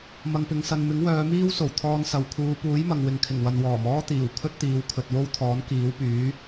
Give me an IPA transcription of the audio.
m ɐ˨ ŋ p ɪ˨˧ ŋ s ɐ˨ n m ɪ˨˥ ŋ w œː˨˧ m iː˥ w s o˨˩ w t̪ʰ ɔː˧ n s ɐ˨ w kʰ uː˨˧ p uː˨˥ j m ɐ˨ ŋ w ɪ˨ ŋ kʰ ɪ˨˩ ŋ w ɐ˨ n w ɔː˨˩ m ɔː˥ t̪ iː˨˩ w kʰ ɵ˥ t̚ t̪ iː˨˧ w kʰ ɵ˨ t̚ w o˥ w t̪ʰ ɔː˨˥ n k iː˨˥ w p yː˨˥

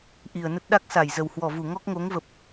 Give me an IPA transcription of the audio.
ʔ i˨˩ ə̯ n ə˦˥ t̚ ɗ a˦˥ k̚ s a˧˩ j z ə˨˩ w h w ɔ˧˩ v u˧˩ ŋ ɔ˦˥ k̚ ŋ o˨˦ ŋ v ə˨˩ p̚

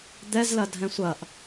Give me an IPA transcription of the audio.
d̪ ɛ z l ɐ dʱ ɛ̃ sʷ ɐ ʔ

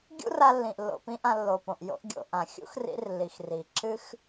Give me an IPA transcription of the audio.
ɡʲ ṵ˦ r a˧ lː ĩ˨ ʔ lː o̰˨ p ĩ˦ ʔ ã˧ lː o˨ p õ˨ ʔ j o̰˦ ʔ ɡʲ o̰˧ ʔ ã˨ xʲ ṵ˦ x r ḭ˧ r l i˨ x r i˨ ǁ ɨ˦ x

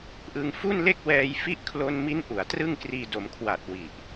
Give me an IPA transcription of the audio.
ʔ ɯ˧ ŋ f u˥˩ n l e˥˩ k̚ w ɛː˧ j f i˦˥ ʔ kʰ l o˧ n m i˦˥ n ʔ u˩˦ a̯ t r ɯ˥˩ ŋ k r iː˧ d o˩˦ m kʰ w a˨˩ t̚ w i˨˩ ʔ

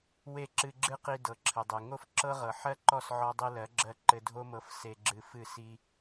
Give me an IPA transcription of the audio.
w e˦˨ ǁ ɨ˧ ɡ͡ǁ ɨ˦ q i˧ d ɤ˨ ǁʰ ɘ˨ dˤ e˨ ŋ o˦ f ǁ ɤ˦ ʁ ɤ˨ ħ ɜ˦ ǃ ɔ˦˨ s ʕ ɔ˧ dˤ i˧ l ɜ˨˦ ɡ͡ǁ ɜ˧ ǃ ɘ˧ dʱ o˦ m ɤ˧ f s e˧ ɡ͡ǁ ɨ˧ f ɨ˦˨ s i˦

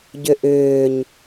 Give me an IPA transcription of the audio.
ɟ ʏ ʔ ʏː ɲ

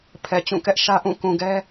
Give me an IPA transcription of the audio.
pʰ ɛ˨ t͡ɕ ũ˦˨ k ɛ˦ ʔ ʃ ä˦ ʔ ũ˦˨ k ũ˨ ɡ ɛ˦

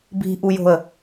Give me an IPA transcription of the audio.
b i̤ ʔ u j o̤ ə̯

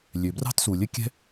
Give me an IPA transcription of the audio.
lʲ ø˩ b r ɑ̤˥ t s u˩ lʲ ɘ˥ kʲ ɛ̤˥

